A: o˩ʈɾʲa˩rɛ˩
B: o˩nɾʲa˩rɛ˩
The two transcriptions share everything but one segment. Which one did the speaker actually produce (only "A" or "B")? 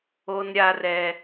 B